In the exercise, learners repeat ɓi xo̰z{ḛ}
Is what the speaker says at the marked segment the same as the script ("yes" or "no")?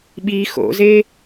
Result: no